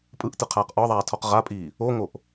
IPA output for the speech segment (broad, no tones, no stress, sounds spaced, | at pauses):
pʼ ɯ ʔ t ɯ qʰ aː q ʔ ɒ ðˤ aː tʰ ɔ q ʁ a pʼ iː | o ŋ o ʔ